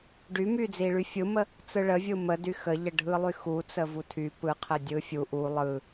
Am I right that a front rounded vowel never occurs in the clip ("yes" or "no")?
no